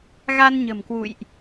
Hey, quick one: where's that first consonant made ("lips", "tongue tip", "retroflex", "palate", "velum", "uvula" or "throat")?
velum